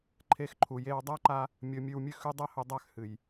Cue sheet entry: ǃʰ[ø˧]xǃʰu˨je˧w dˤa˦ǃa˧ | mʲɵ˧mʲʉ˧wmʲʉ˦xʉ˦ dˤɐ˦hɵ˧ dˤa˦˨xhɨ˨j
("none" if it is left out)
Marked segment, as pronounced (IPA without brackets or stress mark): e˧